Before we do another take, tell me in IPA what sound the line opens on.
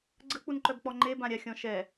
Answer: ɡ͡ǀ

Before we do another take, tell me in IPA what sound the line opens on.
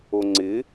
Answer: o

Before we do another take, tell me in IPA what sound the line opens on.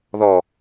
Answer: ð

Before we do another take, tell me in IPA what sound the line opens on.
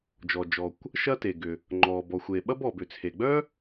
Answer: d͡ʒ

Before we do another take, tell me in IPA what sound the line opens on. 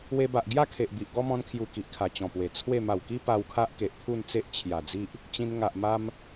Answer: w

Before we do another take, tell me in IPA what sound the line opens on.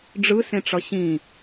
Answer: ɖ͡ʐ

